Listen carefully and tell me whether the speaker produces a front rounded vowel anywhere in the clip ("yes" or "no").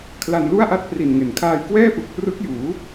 no